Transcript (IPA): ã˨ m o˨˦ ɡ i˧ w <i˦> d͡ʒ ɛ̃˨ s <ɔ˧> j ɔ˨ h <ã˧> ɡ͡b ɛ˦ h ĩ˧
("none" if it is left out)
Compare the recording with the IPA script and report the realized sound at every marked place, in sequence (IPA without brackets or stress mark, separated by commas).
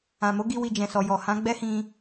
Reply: i˨, ɔ˨, ã˨˦